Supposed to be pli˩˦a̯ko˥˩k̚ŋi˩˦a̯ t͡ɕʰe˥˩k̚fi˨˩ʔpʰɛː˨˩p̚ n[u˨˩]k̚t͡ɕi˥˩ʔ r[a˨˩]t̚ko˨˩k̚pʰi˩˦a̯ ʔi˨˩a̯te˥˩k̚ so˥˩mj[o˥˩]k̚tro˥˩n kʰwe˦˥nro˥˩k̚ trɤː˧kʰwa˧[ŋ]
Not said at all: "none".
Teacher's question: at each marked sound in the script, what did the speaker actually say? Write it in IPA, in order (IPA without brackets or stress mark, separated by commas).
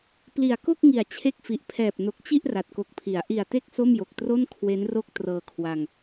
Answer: o˨˩, a˨˩, o˨˩, ŋ